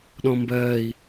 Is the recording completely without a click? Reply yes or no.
yes